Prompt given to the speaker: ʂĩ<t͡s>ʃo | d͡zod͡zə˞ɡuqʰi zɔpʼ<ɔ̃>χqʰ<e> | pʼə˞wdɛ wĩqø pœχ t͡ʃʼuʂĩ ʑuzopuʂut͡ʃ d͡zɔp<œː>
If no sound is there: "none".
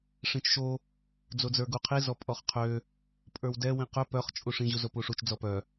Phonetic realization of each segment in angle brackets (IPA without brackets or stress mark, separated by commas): t͡ʃ, ɔ, ø, œ